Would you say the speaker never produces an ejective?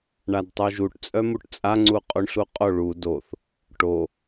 no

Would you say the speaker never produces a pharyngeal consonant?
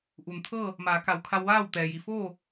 yes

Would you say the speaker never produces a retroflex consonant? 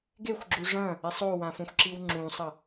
no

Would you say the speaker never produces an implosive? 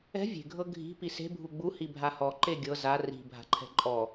yes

